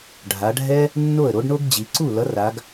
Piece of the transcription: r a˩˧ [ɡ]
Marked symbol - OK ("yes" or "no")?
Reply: yes